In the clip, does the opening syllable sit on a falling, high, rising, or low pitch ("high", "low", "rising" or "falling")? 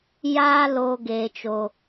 high